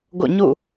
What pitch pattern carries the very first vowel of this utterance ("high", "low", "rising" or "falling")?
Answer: falling